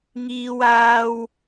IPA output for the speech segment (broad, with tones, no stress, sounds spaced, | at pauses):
ŋ iː˥ w aː˥ w